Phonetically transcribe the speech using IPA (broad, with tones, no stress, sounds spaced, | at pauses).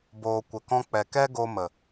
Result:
b oː˨ kʷ ə˨ k ɔ̃˧ k͡p ɛ˨ k ɛ˦ ɡ o˧ m ə˨